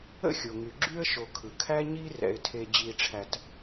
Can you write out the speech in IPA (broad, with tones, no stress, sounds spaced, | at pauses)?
ə̰˥ xʲ o˩ ŋ y˩ ɡ͡ǁ y˥ ə̯ ʃ o˨ kʰ ɯ˩ kʰ æ˦ ɲ i˦ r ɛ̰˨ ɪ̯ tʰ e˨ d͡ʑ i˨ ʈ͡ʂʰ æ˨ t